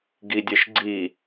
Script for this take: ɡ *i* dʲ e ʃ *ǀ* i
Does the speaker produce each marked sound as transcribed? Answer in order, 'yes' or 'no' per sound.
yes, no

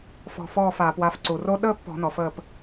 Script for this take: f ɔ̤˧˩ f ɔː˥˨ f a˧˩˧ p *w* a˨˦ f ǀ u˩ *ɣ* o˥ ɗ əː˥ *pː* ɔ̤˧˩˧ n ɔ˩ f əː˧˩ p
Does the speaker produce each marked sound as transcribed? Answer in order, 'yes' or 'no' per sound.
yes, no, yes

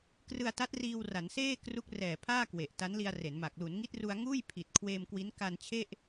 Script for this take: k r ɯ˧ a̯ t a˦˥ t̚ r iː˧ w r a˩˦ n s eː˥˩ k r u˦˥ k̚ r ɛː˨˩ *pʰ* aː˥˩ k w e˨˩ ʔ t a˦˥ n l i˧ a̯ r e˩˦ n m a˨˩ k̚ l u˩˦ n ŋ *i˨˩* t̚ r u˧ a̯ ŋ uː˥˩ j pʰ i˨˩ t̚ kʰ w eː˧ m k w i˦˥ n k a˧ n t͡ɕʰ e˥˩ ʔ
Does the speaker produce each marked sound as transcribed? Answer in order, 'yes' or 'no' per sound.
yes, no

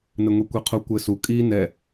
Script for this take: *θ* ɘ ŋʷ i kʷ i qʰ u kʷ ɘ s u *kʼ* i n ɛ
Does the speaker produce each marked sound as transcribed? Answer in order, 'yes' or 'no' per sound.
no, yes

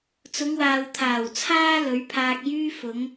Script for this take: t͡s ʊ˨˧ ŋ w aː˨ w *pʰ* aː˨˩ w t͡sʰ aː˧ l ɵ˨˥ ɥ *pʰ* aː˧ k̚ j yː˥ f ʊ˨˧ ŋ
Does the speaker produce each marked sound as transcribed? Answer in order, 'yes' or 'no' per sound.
no, yes

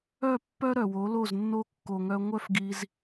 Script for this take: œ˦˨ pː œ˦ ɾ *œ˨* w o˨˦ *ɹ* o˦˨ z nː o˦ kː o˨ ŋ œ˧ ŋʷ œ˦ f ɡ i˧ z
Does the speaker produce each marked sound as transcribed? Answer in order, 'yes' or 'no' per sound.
yes, no

